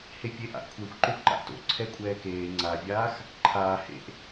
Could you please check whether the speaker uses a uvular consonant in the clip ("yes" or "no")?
no